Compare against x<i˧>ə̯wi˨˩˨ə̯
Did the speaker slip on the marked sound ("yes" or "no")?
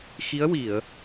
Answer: yes